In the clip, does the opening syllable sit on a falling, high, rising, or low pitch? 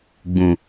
low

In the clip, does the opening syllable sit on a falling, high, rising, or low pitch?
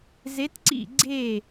rising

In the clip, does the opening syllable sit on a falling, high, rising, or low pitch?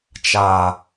low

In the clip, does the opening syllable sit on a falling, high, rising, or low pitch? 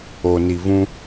low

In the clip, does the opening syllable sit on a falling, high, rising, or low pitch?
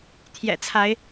low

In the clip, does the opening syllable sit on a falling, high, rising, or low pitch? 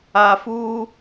low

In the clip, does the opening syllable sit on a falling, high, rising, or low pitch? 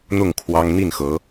falling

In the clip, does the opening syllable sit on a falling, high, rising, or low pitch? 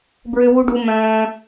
high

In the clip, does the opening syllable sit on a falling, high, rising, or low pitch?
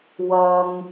low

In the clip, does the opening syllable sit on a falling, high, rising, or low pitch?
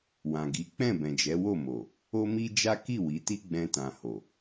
low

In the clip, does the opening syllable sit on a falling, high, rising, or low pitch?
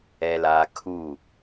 low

